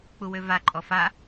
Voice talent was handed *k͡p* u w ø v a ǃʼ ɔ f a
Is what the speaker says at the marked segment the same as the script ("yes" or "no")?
yes